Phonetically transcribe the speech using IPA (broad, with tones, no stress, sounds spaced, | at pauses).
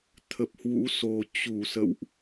t̪ʰ ə˨˩ p̚ h w ṵ˧˥ s o˨˩ t͡ɕ u˧˩ s ə̰˧˨ w ʔ